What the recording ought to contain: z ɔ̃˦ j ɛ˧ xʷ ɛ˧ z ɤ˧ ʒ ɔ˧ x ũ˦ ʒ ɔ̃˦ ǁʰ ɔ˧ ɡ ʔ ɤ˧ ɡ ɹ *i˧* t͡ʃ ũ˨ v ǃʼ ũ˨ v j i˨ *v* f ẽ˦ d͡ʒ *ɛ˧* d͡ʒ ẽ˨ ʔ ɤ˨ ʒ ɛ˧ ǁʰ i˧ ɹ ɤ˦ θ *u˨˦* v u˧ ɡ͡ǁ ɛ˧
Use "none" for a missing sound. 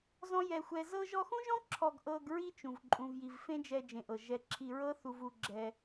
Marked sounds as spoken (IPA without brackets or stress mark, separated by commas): i˦, v, ɛ˧, u˧